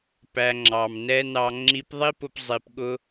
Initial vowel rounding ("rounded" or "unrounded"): unrounded